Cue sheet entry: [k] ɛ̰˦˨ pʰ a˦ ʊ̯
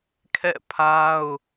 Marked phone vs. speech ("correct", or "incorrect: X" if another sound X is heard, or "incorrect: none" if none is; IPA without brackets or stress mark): incorrect: kʰ